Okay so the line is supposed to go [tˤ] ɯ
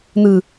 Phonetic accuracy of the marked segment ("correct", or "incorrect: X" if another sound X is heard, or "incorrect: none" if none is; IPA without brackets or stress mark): incorrect: n̪